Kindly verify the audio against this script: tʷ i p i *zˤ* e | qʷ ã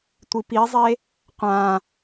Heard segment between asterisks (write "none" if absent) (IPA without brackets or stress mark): zˤ